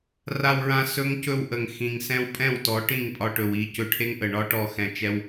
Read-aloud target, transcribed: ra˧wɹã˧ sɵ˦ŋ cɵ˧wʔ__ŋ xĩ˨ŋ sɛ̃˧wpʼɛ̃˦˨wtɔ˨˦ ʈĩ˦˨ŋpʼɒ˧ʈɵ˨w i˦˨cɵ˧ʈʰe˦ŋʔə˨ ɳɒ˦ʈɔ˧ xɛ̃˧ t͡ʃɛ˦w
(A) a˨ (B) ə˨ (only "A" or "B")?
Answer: B